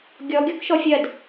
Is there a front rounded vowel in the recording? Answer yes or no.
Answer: no